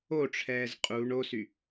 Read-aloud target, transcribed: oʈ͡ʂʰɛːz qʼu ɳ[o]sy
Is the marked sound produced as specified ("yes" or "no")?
yes